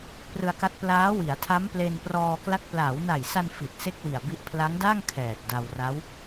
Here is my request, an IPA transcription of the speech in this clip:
p r ɯ˧ a̯ k a˦˥ t̚ p l aː˦˥ w i˩˦ a̯ tʰ a˦˥ m p l e˧ n p r ɔː˧ k l a˦˥ k̚ p l aː˩˦ w n a˨˩ j s a˧ n f i˨˩ t̚ s e˥˩ k̚ w i˨˩ a̯ b i˦˥ ʔ pʰ l a˦˥ ŋ d a˥˩ ŋ kʰ ɛː˨˩ t̚ d a˧ w r a˦˥ w

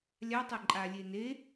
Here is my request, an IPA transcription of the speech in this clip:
lʲ a tˤ e ǃʼ a lʲ e n e

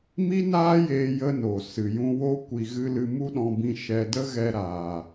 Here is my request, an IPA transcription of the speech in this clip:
m i˦ n aː˦ j eː˧ j ə˧ n o˨ s ɨ˨ j ũ˧ w o˦ kʷ i˧ ɣ ɨ˦ l ɨ˧ m u˦ ɗ ɔ̃˧ b ĩ˧ ʃ ɛ˧ d ə˦ ɣ ɛ˧ ɾ aː˨

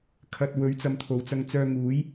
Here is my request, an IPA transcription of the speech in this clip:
kʰ ɐ˨ t̚ w ɵ˨˥ ɥ t͡s ɐ˨˧ m t̪ʰ o˨˩ w t͡s ɐ˧ ŋ t͡s œː˧ ŋ uː˨˥ j

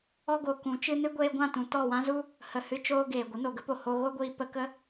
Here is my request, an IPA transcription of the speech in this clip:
ɔ˦ ɡ o˨ k ũ˨˦ t͡ʃ ɨ˦ n ɨ˦ ɡʷ eː˧ ɡʷ ã˦˨ t ũ˨ t ɔ˦˨ w ã˦ z u˦ | h ə˧ h ɨ˦ t͡ʃ oː˦ ɡ eː˨ ɡʷ ə˨˦ n o˨ ɡ ə˦ p o˨ h o˧ ɣ o˦ ɡʷ iː˧ p ə˧ k ə˦

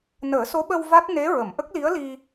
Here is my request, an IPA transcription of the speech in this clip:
n əː˨˩˦ s o˧˥ ɓ ə˧ w v a˦˥ t̚ n e˧˥ ɹ ə˨˩˨ m ʔ ə˦˥ k̚ l i˧˥ ə̯ l i˧

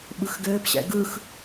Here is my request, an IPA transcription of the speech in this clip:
ɓ ɯ x ɡ ɘː p ɕ ɛ̰ ɡ ɯ x

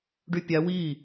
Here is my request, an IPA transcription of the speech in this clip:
ɖ y pʲ a w i

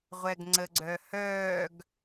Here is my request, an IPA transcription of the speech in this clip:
ʁʷ ɛ ɡ ŋ͡ǀ ə ɡ͡ǀ œ h œː ɡ

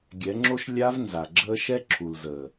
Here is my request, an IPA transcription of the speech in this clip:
ɡʲ ɛ˨˦ ŋ͡ǁ o˦ ʃ lʲ a˧ v n z a˨ ɡ͡ǁ əː˦ ʃ ɛ˦ ǁʰ u˨ l z əː˨

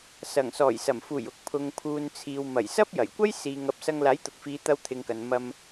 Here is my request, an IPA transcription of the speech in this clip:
s ɐ˨˩ ŋ s ɔː˨˩ j s ɐ˨˩ m f uː˨˩ j ʊ˨ k̚ pʰ ʊ˨ ŋ pʰ uː˨ n t͡sʰ iː˨ w m ɐ˨˩ j s ɐ˥ p̚ j ɐ˨˩ j kʷ ɐ˥ j s iː˧ ŋ ɐ˧ p̚ s ɐ˧ ŋ l aː˨˥ j t̪ ʊ˨ k̚ f iː˨˧ t̪ ɐ˧ w t̪ʰ ɪ˨ ŋ k ɐ˨ n m ɐ˧ m

